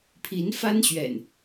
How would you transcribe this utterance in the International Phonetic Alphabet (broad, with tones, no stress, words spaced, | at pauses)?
pʰi˨˦nfa˦nɕɥɛ̰˨˩n